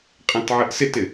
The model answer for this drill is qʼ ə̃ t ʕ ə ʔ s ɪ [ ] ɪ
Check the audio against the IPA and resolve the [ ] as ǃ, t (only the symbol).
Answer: t